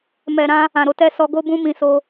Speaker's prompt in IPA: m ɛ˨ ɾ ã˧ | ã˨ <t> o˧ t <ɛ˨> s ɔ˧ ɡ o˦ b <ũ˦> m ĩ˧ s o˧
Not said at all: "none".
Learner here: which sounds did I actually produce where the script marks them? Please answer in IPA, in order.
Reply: ɾ, ɛ˧, ũ˦

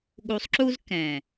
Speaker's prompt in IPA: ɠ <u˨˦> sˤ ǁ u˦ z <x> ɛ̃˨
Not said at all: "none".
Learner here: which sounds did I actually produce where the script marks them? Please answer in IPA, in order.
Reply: u˨˦, k

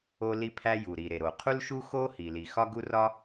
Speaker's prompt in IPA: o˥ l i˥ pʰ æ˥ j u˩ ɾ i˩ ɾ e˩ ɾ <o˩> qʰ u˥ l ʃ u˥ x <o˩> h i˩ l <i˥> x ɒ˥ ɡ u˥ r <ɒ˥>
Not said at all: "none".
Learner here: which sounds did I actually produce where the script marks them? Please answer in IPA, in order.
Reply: o˩, o˥, i˩, ɒ˥

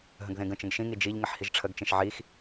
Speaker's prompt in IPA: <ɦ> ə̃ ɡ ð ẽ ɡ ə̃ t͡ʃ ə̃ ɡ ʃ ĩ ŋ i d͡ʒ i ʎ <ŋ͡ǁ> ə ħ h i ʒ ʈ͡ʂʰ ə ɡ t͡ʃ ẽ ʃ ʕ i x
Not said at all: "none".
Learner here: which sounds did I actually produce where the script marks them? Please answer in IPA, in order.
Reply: ɦ, ŋ

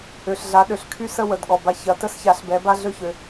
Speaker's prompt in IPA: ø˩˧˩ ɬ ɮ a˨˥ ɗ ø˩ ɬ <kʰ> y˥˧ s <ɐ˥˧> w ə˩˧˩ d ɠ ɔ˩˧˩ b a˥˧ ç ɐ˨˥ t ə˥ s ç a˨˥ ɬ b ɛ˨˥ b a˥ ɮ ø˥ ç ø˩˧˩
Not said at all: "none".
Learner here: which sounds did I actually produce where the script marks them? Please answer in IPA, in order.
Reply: kʰ, ə˥˧

